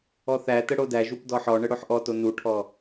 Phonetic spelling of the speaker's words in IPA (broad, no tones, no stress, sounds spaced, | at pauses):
ɔ θ æ t ə ɽ o d æ ʒ u p d ɔ ħ ɔ ɳ ə ɽ o ħ ʔ ɔ t o n u ʈʰ ɔ